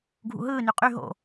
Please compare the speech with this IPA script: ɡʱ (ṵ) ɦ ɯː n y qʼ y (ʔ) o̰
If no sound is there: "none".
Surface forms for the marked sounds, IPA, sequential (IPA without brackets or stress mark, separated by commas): ṵ, ɦ